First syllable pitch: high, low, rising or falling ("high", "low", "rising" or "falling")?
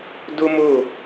high